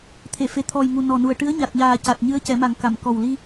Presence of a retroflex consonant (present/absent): present